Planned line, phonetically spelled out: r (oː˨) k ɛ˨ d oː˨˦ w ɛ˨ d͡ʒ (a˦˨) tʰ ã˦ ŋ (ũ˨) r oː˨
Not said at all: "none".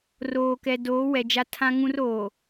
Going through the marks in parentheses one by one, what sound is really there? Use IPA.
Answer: oː˨, a˦, ũ˦

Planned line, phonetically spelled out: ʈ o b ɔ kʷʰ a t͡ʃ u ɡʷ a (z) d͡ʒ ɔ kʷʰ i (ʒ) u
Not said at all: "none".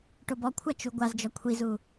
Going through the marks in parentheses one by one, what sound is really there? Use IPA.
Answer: z, z

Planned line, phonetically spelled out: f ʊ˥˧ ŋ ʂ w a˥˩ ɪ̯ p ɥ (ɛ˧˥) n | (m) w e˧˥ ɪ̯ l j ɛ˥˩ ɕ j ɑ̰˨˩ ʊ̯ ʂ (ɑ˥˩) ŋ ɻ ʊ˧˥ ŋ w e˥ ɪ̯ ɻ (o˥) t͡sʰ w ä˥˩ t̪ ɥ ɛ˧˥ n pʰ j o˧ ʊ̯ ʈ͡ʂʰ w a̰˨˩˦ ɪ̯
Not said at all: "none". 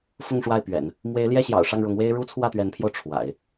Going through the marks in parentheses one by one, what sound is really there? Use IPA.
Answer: ɛ̰˨˩˦, m, ɑ˥˩, u˥

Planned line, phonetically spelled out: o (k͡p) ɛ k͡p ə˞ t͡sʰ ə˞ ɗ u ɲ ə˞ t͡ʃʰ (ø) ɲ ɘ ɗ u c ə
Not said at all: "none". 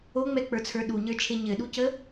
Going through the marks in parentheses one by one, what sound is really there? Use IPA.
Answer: ŋ͡m, e

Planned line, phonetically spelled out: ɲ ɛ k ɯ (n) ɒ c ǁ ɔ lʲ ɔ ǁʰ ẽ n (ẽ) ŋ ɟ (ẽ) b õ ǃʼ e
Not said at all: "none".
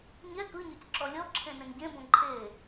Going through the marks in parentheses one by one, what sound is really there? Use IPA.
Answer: ɲ, ẽ, ẽ

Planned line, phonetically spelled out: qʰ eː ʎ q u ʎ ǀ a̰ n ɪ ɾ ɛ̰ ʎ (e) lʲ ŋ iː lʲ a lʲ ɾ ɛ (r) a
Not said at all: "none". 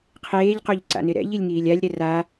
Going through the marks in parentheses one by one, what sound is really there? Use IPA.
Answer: i, r

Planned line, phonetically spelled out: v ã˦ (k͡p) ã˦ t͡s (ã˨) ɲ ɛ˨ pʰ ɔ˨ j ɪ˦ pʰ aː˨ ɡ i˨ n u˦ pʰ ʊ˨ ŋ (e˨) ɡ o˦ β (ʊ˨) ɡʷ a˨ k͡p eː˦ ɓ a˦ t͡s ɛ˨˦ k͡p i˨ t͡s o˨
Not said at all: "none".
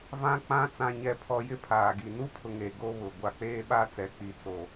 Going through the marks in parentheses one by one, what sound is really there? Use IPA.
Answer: k͡p, ã˨, e˨, ʊ˨

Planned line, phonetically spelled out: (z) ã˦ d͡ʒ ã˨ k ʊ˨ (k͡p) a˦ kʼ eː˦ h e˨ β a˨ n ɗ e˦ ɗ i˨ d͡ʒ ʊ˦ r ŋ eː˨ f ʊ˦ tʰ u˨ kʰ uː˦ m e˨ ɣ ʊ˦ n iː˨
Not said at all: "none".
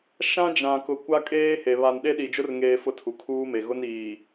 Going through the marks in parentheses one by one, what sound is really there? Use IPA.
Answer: ʃ, kʷ

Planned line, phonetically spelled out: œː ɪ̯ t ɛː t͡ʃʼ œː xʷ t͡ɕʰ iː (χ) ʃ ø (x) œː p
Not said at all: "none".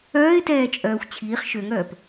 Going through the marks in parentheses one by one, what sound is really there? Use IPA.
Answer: χ, ŋ

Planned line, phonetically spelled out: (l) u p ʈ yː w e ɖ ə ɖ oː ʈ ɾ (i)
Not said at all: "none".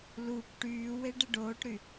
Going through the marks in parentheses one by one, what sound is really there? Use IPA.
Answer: l, y

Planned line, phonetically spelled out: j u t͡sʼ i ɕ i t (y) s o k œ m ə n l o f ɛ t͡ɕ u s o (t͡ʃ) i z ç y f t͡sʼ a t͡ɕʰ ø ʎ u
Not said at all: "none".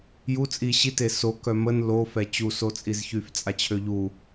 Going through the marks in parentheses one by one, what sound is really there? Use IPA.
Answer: e, t͡sʼ

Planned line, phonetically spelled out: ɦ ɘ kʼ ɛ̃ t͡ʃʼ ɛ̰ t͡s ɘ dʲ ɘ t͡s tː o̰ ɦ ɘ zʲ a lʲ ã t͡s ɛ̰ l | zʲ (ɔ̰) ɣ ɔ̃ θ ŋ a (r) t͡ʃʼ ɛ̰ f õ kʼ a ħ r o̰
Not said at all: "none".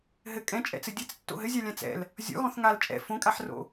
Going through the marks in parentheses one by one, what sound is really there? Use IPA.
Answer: ɔ̰, l

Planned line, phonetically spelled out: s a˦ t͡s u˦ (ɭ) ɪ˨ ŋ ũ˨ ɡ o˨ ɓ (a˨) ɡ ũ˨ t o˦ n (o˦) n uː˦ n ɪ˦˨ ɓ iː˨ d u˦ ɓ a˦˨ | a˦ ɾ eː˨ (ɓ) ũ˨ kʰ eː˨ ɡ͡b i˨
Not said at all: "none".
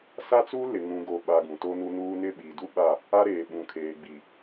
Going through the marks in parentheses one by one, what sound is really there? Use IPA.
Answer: l, a˨, u˦, ɓ

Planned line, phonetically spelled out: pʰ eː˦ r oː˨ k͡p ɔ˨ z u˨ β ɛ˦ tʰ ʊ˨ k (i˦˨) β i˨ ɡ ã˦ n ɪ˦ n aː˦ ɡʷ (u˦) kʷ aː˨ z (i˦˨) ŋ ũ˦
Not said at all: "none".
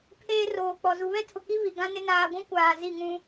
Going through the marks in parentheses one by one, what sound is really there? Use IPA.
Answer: i˦, ũ˦, i˦˨

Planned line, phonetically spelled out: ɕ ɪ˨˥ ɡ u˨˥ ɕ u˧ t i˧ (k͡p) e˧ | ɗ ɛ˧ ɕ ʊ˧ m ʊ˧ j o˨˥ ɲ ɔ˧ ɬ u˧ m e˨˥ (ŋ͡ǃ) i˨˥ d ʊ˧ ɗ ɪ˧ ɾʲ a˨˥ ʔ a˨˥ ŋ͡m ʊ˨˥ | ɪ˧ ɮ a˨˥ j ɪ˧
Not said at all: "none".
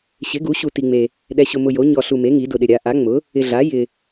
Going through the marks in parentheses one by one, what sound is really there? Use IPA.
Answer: ŋ͡m, ŋ

